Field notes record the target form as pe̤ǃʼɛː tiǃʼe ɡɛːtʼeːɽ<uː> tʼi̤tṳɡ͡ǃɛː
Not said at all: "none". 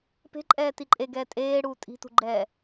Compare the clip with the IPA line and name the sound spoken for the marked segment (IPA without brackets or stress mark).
uː